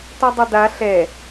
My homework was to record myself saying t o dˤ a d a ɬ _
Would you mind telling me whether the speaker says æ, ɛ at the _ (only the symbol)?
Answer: ɛ